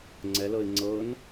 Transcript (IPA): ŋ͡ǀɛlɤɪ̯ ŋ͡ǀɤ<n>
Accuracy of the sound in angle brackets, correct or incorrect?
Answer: correct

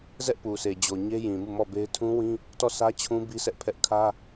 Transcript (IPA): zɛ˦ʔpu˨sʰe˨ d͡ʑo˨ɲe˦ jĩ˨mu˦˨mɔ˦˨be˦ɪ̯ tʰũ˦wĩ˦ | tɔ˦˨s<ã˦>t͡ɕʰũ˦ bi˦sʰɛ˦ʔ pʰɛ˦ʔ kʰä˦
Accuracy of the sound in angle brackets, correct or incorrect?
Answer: incorrect: ä˦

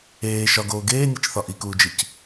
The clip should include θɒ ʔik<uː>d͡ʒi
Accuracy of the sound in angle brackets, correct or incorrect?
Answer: correct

